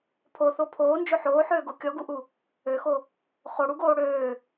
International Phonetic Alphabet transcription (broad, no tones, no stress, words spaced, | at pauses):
pʰoθo pʰoːnd͡ʒø ħoːħøːɡo kʲɔɡuʔu | øxo | χoɽuɡoː ɽøː